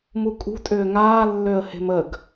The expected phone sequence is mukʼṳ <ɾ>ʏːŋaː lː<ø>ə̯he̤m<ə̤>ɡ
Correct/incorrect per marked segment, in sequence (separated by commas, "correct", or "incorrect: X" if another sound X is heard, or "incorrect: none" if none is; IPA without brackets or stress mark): incorrect: tʼ, correct, incorrect: ə